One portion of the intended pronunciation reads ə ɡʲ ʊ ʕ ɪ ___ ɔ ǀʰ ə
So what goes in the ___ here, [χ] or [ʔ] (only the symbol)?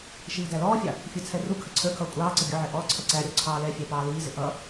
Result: ʔ